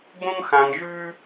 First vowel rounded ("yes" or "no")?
yes